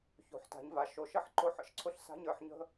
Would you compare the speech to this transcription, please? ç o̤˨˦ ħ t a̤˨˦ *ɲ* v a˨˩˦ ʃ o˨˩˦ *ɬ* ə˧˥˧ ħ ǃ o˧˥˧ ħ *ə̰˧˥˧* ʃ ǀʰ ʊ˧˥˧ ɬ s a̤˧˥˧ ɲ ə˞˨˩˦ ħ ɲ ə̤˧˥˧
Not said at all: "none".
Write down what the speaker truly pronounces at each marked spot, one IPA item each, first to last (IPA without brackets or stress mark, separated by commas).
ɲ, ʃ, ə̰˧˥˧